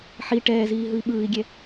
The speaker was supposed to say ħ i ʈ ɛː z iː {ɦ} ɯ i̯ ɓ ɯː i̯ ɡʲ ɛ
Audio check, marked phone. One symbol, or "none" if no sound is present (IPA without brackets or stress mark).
ɦ